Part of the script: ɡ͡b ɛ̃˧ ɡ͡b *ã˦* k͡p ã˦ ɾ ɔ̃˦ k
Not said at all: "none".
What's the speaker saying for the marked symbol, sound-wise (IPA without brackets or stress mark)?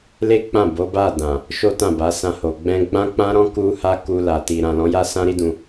ã˦